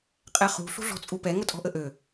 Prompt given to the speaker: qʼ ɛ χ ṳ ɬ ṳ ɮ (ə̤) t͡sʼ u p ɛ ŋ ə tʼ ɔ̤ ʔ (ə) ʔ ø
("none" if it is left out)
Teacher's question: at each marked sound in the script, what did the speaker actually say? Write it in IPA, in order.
ɔ̤, ə

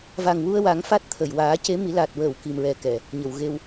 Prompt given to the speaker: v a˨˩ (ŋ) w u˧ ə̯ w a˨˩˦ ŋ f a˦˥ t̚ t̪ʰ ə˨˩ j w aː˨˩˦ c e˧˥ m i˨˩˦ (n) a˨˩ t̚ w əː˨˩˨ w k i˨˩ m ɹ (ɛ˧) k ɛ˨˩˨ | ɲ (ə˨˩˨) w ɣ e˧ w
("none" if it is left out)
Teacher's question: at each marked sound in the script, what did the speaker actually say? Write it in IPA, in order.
ŋ, l, ɛ˨˩, ə˨˩˨

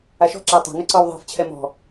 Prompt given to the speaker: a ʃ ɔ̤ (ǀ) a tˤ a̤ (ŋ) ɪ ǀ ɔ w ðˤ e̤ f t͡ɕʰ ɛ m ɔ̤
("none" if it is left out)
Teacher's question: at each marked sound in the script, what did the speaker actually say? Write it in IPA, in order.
ǁ, ŋ

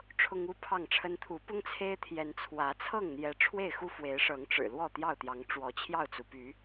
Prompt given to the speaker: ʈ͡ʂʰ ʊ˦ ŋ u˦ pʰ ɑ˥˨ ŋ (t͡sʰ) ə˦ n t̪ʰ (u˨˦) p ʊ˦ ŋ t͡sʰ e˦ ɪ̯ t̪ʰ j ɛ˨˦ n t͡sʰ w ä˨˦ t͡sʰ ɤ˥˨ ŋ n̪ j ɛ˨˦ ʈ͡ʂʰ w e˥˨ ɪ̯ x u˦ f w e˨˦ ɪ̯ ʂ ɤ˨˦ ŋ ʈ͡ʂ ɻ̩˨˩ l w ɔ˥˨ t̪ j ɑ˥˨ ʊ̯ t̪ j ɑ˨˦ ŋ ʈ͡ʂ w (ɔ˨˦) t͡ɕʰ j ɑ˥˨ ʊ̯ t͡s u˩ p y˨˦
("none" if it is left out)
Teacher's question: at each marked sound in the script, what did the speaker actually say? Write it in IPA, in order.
ʈ͡ʂʰ, u˨˦, ɔ˨˦

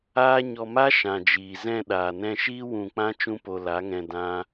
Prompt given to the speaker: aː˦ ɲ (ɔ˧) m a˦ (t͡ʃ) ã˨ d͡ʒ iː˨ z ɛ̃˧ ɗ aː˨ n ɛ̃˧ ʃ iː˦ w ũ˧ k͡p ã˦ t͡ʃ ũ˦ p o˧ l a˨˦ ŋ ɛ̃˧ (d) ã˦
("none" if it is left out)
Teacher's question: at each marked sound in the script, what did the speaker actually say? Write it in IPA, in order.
ɔ˧, ʃ, d

